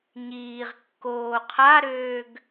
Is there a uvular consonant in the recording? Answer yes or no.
yes